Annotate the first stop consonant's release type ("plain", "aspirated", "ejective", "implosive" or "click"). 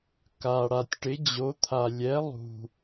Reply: plain